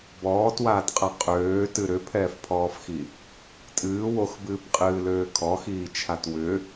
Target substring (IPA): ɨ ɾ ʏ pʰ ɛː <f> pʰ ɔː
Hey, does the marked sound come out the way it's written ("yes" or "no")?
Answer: yes